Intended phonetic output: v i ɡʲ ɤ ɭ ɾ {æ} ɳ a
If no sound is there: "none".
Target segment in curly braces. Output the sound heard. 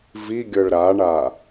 a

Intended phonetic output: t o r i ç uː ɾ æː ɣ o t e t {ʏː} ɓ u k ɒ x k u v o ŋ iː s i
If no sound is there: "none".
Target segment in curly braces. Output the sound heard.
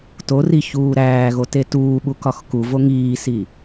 uː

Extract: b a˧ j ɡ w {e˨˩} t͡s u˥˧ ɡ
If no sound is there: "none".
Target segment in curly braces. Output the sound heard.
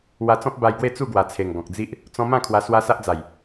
e˥˧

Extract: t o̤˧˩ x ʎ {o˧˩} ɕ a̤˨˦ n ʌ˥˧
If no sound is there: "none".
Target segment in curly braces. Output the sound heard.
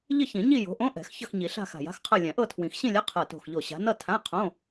o˧˩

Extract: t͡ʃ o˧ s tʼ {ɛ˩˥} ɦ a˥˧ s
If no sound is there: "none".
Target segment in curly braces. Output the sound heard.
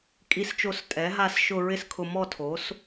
ɛ˩˥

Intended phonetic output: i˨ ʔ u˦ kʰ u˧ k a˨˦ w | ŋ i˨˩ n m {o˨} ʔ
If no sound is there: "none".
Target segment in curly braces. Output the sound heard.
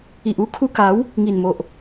o˨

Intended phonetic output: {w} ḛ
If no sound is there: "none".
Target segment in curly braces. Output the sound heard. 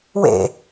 w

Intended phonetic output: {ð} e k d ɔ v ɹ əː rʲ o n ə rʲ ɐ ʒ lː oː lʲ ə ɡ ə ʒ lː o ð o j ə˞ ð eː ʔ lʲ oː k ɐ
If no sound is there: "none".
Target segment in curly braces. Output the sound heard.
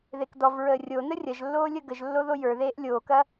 ð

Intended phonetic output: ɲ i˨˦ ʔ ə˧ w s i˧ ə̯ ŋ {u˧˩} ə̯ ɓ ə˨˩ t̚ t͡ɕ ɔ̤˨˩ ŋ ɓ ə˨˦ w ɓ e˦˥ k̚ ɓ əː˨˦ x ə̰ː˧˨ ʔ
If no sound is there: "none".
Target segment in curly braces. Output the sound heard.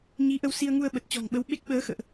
u˧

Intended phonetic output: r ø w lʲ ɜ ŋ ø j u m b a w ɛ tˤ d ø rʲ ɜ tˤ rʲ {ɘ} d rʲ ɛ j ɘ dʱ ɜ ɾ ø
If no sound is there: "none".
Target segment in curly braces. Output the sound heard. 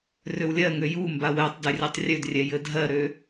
ø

